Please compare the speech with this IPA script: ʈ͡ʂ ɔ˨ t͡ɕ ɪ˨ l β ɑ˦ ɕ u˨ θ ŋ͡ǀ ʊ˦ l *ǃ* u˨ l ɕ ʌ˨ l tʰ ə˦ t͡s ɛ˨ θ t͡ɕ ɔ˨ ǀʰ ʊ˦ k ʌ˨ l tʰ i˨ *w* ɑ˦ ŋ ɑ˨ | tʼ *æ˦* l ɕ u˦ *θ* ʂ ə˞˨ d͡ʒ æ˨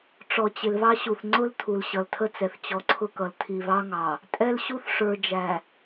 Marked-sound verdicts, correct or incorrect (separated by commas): incorrect, incorrect, incorrect, correct